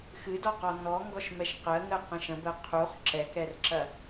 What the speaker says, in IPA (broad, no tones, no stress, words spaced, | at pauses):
xɨdɔqɔ nɔŋɡɔʃmɛʃ qɜŋɜqɐ̃ʃ ə̃bɜ qʰuχ ǁɛkɛrǁɐ